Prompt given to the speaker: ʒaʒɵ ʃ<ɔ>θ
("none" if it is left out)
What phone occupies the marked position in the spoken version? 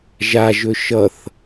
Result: ʌ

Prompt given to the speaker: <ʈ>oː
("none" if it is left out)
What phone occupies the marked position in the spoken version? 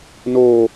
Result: n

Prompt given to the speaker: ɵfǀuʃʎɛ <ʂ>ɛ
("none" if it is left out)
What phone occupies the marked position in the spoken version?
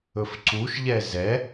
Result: z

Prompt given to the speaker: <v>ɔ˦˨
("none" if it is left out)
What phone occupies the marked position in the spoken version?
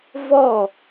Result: v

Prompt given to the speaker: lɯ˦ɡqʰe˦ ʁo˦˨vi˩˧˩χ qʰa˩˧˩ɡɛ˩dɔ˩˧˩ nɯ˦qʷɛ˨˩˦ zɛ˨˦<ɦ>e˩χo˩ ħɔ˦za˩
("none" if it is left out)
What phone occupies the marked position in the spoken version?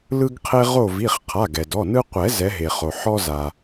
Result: ɦ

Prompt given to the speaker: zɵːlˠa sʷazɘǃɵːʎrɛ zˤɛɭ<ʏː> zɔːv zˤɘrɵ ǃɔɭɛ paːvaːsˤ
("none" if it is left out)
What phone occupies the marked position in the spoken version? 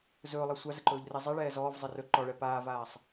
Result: ɛː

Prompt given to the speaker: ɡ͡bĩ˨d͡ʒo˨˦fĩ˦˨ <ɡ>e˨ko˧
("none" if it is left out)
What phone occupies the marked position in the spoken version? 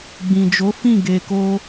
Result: ɡ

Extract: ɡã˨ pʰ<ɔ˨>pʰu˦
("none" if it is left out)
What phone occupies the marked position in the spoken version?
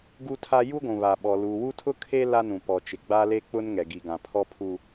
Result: ɔ˦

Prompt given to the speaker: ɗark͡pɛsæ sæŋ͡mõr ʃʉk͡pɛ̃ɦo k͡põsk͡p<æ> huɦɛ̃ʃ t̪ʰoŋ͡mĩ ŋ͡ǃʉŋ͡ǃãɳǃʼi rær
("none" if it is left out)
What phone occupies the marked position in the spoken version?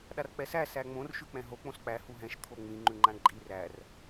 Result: æ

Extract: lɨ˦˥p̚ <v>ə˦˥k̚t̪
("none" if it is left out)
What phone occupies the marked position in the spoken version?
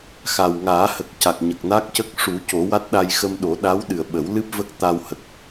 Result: v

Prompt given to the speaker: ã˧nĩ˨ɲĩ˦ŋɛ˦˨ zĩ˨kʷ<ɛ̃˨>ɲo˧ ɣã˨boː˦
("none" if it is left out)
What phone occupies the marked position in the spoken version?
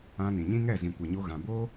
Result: ɛ˨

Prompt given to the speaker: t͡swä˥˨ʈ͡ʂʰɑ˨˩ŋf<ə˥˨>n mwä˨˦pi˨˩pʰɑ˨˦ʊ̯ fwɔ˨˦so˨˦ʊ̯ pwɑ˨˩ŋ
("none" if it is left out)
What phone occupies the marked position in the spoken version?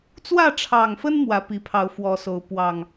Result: ə˦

